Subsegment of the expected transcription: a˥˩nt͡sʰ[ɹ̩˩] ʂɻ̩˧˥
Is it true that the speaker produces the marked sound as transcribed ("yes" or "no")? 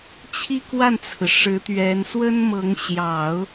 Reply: yes